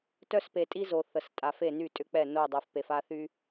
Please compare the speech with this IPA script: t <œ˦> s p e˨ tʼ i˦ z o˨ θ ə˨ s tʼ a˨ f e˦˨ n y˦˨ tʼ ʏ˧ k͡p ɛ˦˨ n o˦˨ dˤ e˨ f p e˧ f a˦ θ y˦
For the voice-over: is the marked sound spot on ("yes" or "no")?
yes